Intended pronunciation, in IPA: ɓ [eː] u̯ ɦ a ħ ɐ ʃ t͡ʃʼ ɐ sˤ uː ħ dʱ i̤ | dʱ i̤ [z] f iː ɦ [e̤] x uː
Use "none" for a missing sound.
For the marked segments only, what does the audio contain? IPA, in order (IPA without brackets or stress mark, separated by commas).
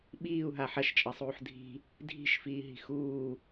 iː, ʃ, i̤